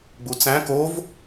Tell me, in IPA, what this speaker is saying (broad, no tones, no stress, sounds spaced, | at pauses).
ɡ͡b u t͡s æ̃ k o v